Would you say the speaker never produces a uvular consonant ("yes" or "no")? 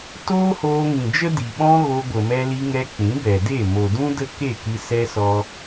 yes